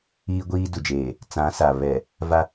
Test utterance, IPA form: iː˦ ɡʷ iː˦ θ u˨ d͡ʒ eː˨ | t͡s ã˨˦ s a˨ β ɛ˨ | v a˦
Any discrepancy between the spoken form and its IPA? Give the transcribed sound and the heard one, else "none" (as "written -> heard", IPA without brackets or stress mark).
θ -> d